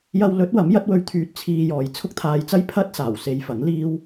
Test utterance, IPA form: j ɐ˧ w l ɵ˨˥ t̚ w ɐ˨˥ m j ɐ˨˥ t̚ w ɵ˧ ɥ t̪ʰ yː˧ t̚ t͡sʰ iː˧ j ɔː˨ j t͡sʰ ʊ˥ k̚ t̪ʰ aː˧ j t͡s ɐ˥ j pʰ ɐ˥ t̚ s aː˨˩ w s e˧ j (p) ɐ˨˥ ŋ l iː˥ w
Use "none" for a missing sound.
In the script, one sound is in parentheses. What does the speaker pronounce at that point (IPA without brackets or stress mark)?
f